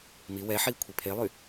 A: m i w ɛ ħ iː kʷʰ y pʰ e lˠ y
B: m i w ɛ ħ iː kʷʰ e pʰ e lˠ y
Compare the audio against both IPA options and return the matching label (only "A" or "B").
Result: B